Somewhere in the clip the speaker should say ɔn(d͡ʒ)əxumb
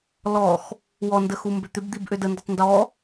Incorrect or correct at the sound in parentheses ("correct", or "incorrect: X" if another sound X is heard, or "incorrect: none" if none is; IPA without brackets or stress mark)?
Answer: incorrect: d